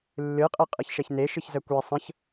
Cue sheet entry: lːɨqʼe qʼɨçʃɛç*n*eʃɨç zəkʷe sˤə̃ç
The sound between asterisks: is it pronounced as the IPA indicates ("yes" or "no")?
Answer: yes